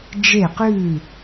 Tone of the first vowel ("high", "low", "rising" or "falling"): falling